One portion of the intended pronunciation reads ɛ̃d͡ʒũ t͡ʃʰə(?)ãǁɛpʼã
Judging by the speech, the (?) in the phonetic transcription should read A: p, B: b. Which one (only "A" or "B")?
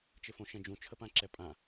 A